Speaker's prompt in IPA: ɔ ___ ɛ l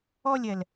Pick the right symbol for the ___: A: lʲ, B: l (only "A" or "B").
A